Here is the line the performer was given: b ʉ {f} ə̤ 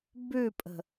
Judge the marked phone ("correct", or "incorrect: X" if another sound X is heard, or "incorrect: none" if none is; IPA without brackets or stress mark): incorrect: pʼ